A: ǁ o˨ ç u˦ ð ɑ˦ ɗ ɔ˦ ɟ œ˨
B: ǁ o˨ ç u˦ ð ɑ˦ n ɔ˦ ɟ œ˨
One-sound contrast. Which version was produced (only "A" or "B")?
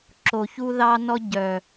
B